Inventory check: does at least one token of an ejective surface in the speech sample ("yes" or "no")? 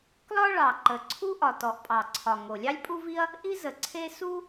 yes